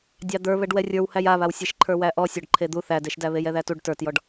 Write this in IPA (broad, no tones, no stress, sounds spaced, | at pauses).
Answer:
dʲ ɑ d̪ ə˞ β ɛ ɖ w ɛ rʲ ə˞ w h æ j a β a w sʲ e ʃ ǃʰ ə˞ w æ ʔ ɔ sʲ ɔ ɖ ǃʰ e d̪ u θ æ d e ʃ d æ β e j ɛ ð æ t u ɖ t ə˞ t j ɔ ɖ